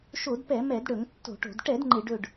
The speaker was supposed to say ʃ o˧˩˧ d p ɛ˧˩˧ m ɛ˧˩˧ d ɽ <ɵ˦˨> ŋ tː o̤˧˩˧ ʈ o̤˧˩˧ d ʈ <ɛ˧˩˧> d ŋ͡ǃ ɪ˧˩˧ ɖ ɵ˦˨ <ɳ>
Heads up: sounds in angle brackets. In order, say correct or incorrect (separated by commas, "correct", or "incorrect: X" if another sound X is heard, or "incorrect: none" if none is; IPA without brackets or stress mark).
incorrect: ɵ˧˩˧, correct, incorrect: ɖ